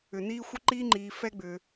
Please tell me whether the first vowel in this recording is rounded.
yes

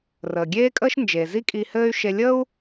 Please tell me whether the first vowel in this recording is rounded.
no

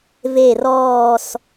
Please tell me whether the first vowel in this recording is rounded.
no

